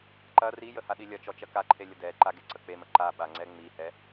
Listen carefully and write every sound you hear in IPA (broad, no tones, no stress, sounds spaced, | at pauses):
ǃ ɐ r i j ə h a ɗ i lʲ ɐ t͡ʃ ɔ t͡ʃ ɐ k a ǃʰ e lʲ ə d ɛ ǃ a ɡ e ǀ ə k͡p e m ə ǃ a ɓ a ŋ͡ǀ ɛ ŋ͡m i h ɛ